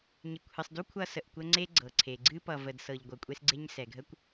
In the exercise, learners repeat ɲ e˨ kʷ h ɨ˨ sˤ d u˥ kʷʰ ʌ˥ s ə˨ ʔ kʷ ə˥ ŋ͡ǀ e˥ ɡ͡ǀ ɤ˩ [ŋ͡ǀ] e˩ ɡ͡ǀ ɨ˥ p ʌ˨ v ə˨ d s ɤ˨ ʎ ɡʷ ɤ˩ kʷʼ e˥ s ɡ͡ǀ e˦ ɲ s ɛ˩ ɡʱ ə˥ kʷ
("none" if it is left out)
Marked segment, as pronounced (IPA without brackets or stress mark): ǀʰ